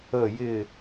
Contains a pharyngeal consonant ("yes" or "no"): no